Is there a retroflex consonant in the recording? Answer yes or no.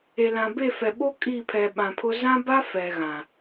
no